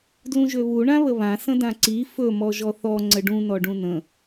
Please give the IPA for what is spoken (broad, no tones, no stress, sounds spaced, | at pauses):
d l ũ ʒ ø β u ɳ ã β ə β ã s ə̃ d ã ǀ i f ɵ m ɔ ʒ ɔ θ ɔ ŋ͡ǀ ə ɖ ũ n ɔ ɖ ũ n ə̃